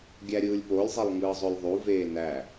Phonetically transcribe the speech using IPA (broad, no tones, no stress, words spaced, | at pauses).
ɡʲæɾʲɯːlʲpolʲzˤelˠ ŋɯːzˤølʲðˤuveː næ